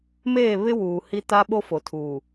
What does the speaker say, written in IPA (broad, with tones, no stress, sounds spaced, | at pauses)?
m eː˦˨ β ɪ˦ w uː˨ h i˦ t a˦ ɓ o˦ f o˨ tʰ uː˨